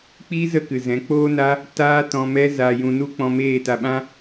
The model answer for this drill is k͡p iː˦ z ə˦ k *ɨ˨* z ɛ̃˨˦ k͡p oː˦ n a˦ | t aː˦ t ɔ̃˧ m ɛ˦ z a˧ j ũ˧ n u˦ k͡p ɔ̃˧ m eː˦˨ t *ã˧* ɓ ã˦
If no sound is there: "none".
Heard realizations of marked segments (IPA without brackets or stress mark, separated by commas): ɨ˨, a˧